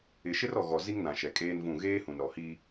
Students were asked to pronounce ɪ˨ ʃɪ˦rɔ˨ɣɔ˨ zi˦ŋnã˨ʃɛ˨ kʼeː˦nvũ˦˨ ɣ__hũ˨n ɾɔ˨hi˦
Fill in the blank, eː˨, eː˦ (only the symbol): eː˦